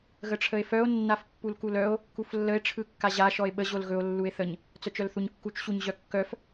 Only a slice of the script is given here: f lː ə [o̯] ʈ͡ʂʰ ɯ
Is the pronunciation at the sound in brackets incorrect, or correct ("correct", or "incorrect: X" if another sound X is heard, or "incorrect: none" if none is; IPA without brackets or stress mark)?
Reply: incorrect: e̯